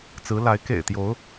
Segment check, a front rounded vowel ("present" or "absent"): absent